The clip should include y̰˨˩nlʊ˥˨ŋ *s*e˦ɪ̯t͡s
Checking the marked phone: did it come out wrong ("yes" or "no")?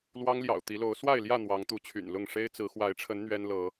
yes